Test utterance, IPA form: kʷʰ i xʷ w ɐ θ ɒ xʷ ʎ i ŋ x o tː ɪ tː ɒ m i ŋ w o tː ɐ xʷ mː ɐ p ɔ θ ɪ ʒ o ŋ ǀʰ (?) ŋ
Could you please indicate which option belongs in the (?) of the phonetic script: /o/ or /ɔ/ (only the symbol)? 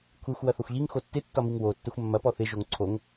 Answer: o